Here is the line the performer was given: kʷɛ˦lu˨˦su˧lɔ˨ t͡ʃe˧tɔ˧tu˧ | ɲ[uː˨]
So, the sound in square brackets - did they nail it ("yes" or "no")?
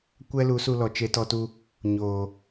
no